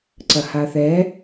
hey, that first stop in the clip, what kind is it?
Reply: click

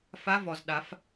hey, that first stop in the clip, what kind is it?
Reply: implosive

